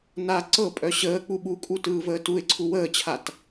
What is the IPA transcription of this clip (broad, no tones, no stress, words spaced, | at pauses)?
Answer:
na ǀɤpʼœ ɕəːk͡pu ɓukʼu tɯːvəːtuɪ̯ǀʰu wəːt͡ɕʰat